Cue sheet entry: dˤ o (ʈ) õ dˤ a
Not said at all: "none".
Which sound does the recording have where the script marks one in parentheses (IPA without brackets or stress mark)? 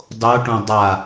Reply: ʈ